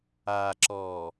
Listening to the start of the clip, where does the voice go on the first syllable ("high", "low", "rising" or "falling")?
low